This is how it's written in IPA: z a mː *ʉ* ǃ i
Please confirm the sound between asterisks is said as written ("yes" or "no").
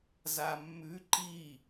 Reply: yes